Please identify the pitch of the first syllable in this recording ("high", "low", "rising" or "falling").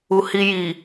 low